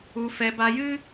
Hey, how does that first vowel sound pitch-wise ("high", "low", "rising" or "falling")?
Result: low